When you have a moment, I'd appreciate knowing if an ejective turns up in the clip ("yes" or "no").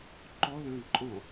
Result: yes